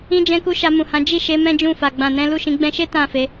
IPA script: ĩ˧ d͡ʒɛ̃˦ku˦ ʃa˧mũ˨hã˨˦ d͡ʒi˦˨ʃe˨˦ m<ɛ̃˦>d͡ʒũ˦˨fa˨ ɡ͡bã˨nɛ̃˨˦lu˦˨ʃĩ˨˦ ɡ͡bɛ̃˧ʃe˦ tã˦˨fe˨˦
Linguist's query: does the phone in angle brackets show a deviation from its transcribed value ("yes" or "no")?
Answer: no